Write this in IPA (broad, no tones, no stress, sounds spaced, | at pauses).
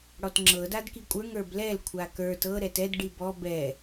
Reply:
ɽ ɔ t ŋ͡ǁ ɤ d a d k i kʷʼ ə˞ ŋ ə˞ b l ɛ l kʷʰ a k ə˞ t ɤ ɾ ɛ t ɛ d ɖ i b ɔ b ɛ